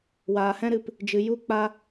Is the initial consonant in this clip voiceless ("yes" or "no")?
no